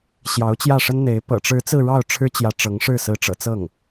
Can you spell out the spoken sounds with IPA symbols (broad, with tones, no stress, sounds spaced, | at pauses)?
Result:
ɕ j ɑ˧˥ ʊ̯ t͡ɕ j ä˥˩ ʂ ə˥ n n̪ e˧˥ ɪ̯ p ɤ̰˨˩ ʈ͡ʂ ɻ̩˧˥ t͡s ɹ̩˥˧ ɻ ɑ˥˩ ʊ̯ ʈ͡ʂʰ ɻ̩˥ t͡ɕ j ä˧˥ ʈ͡ʂ ɤ˧˥ ŋ ʂ ɻ̩˥˩ s ɹ̩˧˥ ʈ͡ʂ ɤ̰˨˩ t͡s ɤ˥˩ ŋ